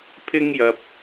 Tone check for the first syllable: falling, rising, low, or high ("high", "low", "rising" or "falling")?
high